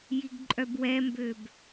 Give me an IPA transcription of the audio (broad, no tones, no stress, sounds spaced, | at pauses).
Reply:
j i ɡ ǃʼ œ b w ɛ m b ø b